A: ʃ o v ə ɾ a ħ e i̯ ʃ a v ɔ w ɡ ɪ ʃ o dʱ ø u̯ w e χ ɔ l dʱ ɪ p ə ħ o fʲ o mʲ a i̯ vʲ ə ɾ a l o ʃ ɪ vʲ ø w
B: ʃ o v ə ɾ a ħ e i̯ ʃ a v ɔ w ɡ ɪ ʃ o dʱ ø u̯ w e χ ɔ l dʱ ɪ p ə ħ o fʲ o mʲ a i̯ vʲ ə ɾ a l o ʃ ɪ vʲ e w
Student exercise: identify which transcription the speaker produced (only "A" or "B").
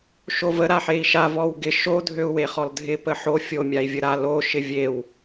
B